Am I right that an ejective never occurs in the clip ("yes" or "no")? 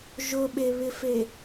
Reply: yes